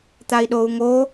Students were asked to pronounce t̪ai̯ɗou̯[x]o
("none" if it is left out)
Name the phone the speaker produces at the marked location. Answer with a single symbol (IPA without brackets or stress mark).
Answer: ŋ